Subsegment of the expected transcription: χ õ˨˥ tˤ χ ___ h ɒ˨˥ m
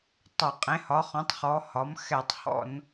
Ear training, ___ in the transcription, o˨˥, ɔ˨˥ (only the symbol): ɔ˨˥